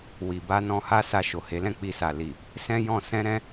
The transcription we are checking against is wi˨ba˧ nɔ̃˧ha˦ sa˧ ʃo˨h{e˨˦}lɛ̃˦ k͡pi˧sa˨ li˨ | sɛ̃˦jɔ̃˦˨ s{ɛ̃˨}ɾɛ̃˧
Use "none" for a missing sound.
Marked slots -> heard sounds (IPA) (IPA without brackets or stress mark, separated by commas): e˨˦, ɛ̃˧